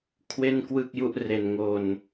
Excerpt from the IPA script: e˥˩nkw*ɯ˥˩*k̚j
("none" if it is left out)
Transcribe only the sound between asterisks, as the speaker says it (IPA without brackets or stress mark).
ɯ˥˩